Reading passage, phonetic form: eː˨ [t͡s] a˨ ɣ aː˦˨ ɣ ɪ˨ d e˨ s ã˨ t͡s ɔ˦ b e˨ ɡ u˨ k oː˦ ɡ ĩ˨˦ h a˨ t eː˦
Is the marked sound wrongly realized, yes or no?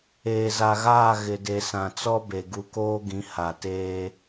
yes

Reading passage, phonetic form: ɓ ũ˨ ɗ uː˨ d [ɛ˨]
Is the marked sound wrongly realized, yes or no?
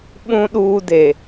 yes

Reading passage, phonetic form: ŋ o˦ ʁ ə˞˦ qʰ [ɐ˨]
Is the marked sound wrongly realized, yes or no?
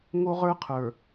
yes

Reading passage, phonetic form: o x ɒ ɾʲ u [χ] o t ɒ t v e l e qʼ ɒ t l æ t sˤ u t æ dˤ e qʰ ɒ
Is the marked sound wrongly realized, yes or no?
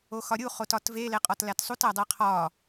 no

